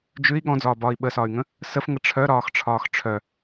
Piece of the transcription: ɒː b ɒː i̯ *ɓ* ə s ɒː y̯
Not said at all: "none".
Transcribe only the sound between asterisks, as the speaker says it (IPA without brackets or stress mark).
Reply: ɓ